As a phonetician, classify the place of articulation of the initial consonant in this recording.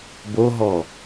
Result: labial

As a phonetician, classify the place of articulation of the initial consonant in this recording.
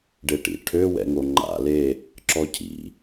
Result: retroflex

